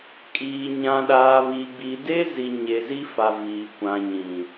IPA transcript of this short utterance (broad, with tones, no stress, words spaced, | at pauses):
kʼiː˨ ɲã˨ɗaː˨ βi˨ɡ͡bi˨ de˦zi˨ ɲe˨zi˦fa˨ viː˨ kʷã˨ ɲĩ˨